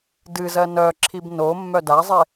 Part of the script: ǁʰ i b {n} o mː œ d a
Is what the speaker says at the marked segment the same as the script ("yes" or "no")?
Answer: yes